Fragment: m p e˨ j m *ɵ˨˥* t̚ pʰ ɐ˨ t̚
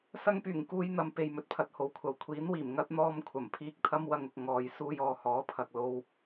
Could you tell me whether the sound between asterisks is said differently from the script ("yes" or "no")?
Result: no